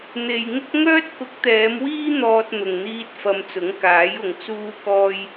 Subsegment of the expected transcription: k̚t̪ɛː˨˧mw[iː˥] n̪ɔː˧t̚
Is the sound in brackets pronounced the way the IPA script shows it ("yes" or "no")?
yes